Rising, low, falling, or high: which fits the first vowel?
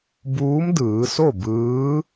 rising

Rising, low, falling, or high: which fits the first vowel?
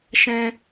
high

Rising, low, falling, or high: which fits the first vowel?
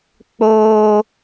high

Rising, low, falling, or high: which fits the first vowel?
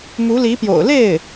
rising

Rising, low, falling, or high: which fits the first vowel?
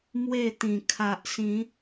falling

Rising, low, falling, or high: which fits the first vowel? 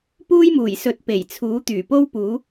high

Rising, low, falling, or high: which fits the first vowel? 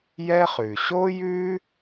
high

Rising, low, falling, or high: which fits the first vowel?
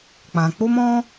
low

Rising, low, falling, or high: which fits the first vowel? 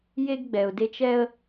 high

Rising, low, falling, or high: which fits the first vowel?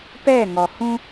falling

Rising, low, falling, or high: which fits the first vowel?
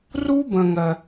high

